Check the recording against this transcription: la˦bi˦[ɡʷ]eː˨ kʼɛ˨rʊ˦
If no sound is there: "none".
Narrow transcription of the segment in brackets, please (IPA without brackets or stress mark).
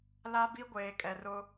ɡʷ